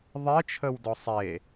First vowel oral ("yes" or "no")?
yes